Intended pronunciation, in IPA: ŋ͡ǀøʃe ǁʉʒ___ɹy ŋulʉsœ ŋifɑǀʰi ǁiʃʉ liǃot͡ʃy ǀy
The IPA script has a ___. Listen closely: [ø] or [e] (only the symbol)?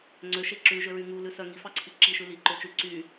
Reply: ø